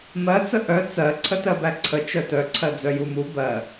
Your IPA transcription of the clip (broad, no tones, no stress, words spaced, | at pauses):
mɜt͡sə ʔœ t͡sɜ ǀʰətɜbæǀʰə t͡ʃœtœ ǀʰɜd͡zœjumu bɜ